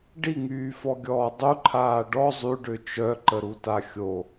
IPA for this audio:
ɖ i ŋ yː f ɔ ɡʲ ɔː dˤ u ǃʰ aː ɖ ɔ zˤ y ɖ ø t͡ʃ œ ǃ ə ɾ u t a xʲ o

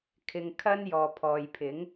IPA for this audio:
kʰ ɪ˧ ŋ kʰ ɐ˥ n j ɔː˨ pʰ ɔː˨ j pʰ ɪ˨˥ ŋ

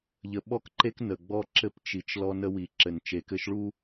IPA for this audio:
ʎ ə˨ ɓ ɔ˦ k ǃ e˦ k n ə˨ ɡ͡b ɔ˦ ǁ ɘ˦ p t͡ʃ i˨ t͡ʃ l ɔ˦ n ə˦ w i˨ ǁ ɘ˨ n t͡ʃ e˨ k ɘ˦ ʃ ɭ u˦

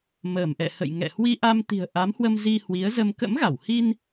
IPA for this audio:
m əː˧˩ m ʔ ɛ̰˧˨ h ə̰˧˨ j ŋ ɛ̰˧˨ h w i˧ ʔ a˧ m t̪ i̤˨˩ ə̯ ʔ a˨˦ m h w ə˧ m z i˧ h w i˨˦ ə̯ z ə˧ m k ə̰˧˥ m ɣ a˧˩ w h i˧ n

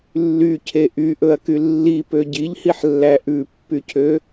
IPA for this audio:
lː y cʰ e ʔ y ʔ ɵ ɐ̯ k y lː i p ø ɟ i ʎ h i ħ lː æ ʔ ʉ pː y cʰ ø

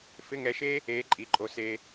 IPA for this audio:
f ɪ˧˥˧ ŋ ɛ˧ ʃ eː˥ | eː˧˥ ǃʼ i˩˧˩ ǃʼ o˧ s eː˧

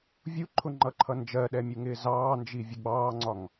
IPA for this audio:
vʲ u ǃʰ ʊ ŋ͡ǃ ʌ ǃʰ ʌ n d͡ʒ ɜ ɗ ɛ mʲ u ŋ ɪː z ɑː n d͡ʒ i vʲ ʊ ɡ͡b ɑː ŋ͡ǀ ɒ ŋ

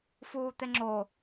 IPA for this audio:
f uː t̪ e ŋ͡ǁ o

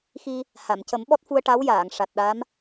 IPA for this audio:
x i˧ | h a˨˩˨ m c ə˨˩˦ m ɓ ɔ˦˥ t̚ f u˧ ə̯ ʈ a˧˥ w j aː˨˩˨ ŋ ʂ a˨˩ t̚ ɗ a˧˥ m

